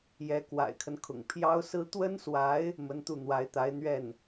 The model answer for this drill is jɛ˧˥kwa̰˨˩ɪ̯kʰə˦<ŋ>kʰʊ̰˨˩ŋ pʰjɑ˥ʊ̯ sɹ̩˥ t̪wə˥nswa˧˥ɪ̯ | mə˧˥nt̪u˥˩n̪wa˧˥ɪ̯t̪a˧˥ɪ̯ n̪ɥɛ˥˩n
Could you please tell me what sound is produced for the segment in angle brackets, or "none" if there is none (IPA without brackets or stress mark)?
n